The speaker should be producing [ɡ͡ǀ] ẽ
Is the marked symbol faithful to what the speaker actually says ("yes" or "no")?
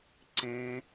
no